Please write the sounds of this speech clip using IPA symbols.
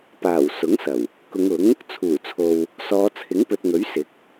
paː˨˩w sʊ˨˥ŋsɐ˨˩w | kʊ˨˧ŋʊ˨˥ŋ | t͡sʰuː˨˩t͡sʰo˨w | sɔː˨˧t͡sʰɪ˨˥ŋpɵ˨t̚ŋɵ˨˥ɥ sɪ˨˥k̚

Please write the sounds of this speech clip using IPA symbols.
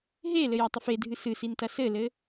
ɦelɘ jatˤɐfedʱɨ sɨsin tɐsɘlɘ

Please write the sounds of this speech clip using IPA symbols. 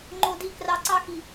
ŋ͡ǃo˨di˨krɑ˨ ǀɑ˦xi˨

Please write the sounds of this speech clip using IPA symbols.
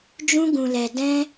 d͡ʒũ˦ɡũ˧lɛ˧dɛ̃˦

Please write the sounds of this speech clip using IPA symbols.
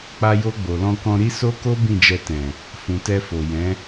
k͡pa˦ jo˧ ɡ͡bo˨lɔ̃˧kɔ̃˧ ɾi˦ so˦ko˦ bĩ˦˨d͡ʒɛ˧tɛ̃˨ | fũ˨tɛ˧fo˨ jɛ̃˨˦

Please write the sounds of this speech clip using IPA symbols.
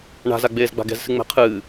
ɳa̤zaɡ͡beːz ɡ͡ba̤ɡɛ̤zsɨ ŋ͡mɛ̤qʰɨː

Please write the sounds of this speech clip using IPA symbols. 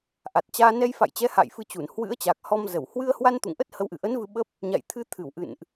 ʔa˨˩t̚t͡ɕaː˧ nɛ˧jfa̰˧˨jt͡ɕɛ˨˦ ha̰˧˨j fɨ˧t͡ɕu˧˩n hwɨ̰˧˥ə̯t͡ɕa˨˩k̚ hɔ˧mzə˧˩w hwɨ˧ə̯hwa˧n t̪ṵ˧˨ŋʔə˦˥t̚hə˨˦wʔɨ˧˩ ʔə˨˦n vɨ˧ɓə˦˥p̚ | ɲa̰˧˨jt̪ʰɨ˧t̪ʰɨ˧˩w ʔɨ̰˧˨nʔ

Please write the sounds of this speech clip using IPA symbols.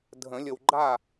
dʱə̃˨˩˦lʲə˨wɡ͡ǃa˥˨

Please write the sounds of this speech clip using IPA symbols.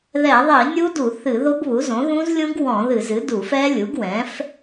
ðɛ˧˩˧ðˤi˧˩˧ nʲu˦˥du˧˩˧ θɨ˧˩˧ ðo˦˥ɡβu˩˥zõ˩˥ ðũ˦˥zlʲũ˦˥ɡwɔ̃˧˩˧ ðɨ˧˩˧zɨ˩˥ du˧˩˧fɛ˦˥lʲu˩˥ɡ wɛ̃˩˥f

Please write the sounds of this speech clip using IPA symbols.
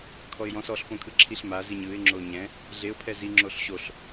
kʰɔɪ̯jɔ̃s ɔɬpõkʰɯ ǁʰiɬmaziɲ ɯɪ̯ŋ͡ǁo ɲɛ̃ | ɮeʊ̯pʰɛ ziŋ͡ǁoɬ ɕoɬ

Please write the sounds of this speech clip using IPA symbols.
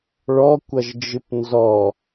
ɭɔkʷʌʒd͡ʒɨp nzɔ

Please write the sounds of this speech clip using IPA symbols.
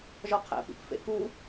ʒɒqʰæ̰pḭpfḛ ku

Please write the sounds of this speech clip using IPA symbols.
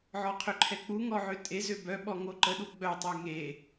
ʕɔqʰøǃʰɛk͡pu ŋɔʕøtʼe zøbœ ɓɔŋoǃə ɗuɡ͡bœ tˤœŋe

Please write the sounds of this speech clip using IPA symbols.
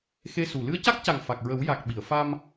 xe˧su˨˩ lɨ˧ə̯ca˦˥k̚ca˨˩ŋ fa˨˩k̚ɹə˨˩˦w ja˨˩k̚ ɓi˨˩˨ə̯ fa˧m

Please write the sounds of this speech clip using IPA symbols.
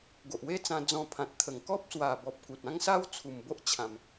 ɡo˨ʔwe˦t͡sã˧ d͡zɔ̃˧ pʰã˨t̚t̪ʰə˨˩ŋkɔ˦p̚ swa˨˩bɔ˨p̚ ku˨t̚ã˦ŋsa˦w t͡sʰu˨˩mbo˦ʔ t͡ɕʰã˧m

